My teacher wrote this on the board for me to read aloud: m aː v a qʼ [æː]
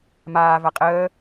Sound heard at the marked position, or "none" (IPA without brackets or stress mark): əː